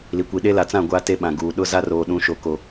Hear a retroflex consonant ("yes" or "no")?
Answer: no